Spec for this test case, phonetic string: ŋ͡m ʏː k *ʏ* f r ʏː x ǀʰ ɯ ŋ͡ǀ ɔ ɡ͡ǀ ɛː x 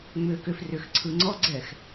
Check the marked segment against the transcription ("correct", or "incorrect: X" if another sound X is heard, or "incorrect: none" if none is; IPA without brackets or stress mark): correct